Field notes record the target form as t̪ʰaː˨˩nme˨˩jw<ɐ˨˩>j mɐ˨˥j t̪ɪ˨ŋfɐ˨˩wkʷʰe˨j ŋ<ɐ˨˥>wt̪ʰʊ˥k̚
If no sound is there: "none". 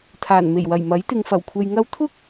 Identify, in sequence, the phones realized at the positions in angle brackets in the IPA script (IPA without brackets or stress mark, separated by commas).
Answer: ɐ˨˩, ɐ˧